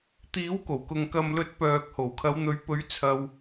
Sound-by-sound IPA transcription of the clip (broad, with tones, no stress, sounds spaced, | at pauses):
t̪ iː˨˥ w k o˨˩ w k ʊ˨ ŋ k ɐ˨ m l ɵ˨˥ t̚ p œː˨ k̚ h o˨˩ w kʰ ɐ˨˧ w n̪ ɵ˨˧ ɥ p ɵ˨˥ ɥ t͡sʰ ɐ˧ w